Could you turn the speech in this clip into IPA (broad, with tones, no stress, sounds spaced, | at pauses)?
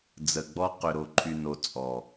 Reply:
d͡z ə˨ ɡ͡b ɔ˦ q ʏ˨ ɾ o˨ ǃʰ y˨ n o˨ t͡sʼ ɔ˨